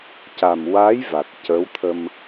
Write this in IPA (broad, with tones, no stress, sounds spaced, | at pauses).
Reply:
c a˨˩ m w a˧˥ j v a˨˩ t̚ c ə˧˥ w t̪ʰ ə˧ m